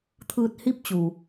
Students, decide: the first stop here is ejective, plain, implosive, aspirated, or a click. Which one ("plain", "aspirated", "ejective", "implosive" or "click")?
aspirated